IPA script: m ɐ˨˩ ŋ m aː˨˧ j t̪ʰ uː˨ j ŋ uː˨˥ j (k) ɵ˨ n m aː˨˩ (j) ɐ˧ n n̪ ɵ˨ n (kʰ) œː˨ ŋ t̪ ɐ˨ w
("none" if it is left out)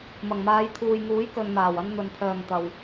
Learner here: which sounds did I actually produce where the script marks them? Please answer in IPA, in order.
k, w, pʰ

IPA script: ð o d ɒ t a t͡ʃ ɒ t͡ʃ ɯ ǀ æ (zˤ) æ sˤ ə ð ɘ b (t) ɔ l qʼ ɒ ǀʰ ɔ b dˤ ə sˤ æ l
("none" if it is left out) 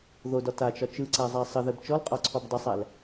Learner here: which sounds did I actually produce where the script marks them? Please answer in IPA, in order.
zˤ, t͡ʃ

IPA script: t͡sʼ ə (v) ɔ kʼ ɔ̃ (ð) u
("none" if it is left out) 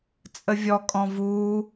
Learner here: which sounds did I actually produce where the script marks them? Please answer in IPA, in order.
vʲ, v

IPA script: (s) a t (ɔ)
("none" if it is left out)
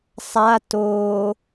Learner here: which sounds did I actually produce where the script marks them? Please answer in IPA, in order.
sˤ, o

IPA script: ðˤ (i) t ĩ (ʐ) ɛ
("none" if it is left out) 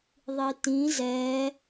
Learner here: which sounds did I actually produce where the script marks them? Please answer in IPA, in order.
i, z

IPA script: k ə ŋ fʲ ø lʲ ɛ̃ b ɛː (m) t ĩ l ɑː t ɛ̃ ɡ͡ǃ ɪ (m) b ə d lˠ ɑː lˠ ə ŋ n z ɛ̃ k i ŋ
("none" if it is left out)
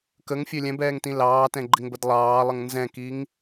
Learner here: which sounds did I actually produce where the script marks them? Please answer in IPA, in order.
ŋ, ŋ

